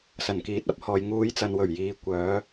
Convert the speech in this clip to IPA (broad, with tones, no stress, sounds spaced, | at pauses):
s ɐ˨˩ n k iː˨˥ t̚ ɐ˨˥ p̚ h ɔː˨ j ŋ uː˨˧ j t͡s ɐ˨ n w ɵ˨˩ ɥ j iː˨ kʷ œː˨˧